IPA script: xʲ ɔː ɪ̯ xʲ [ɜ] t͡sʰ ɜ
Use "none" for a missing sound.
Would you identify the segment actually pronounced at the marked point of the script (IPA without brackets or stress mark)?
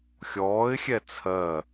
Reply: ɛ